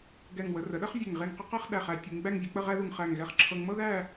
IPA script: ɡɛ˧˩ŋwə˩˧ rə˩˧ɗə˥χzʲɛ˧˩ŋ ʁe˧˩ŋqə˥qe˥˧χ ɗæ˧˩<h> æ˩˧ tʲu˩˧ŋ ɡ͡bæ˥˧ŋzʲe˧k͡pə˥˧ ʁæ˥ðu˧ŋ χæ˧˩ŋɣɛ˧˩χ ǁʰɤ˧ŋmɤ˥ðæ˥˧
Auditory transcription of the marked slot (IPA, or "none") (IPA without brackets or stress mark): χ